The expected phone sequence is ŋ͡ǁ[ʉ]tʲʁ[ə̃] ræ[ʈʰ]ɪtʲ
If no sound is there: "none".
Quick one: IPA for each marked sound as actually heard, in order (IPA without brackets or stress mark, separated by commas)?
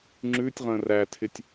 ʉ, ə̃, tʰ